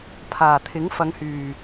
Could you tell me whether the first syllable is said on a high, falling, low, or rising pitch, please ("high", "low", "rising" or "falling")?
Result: low